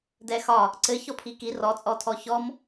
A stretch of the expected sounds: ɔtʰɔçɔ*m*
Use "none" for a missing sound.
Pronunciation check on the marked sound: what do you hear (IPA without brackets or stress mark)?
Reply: m